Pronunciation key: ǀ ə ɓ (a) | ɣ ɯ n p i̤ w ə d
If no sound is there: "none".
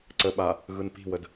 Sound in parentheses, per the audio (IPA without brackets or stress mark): a